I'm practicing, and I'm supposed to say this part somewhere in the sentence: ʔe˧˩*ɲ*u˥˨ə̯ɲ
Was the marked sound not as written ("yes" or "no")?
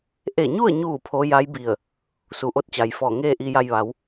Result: no